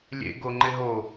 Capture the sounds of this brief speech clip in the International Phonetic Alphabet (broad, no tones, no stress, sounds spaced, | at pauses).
lʲ ḛ ɡ o ŋ͡ǃ ɪ ɦ o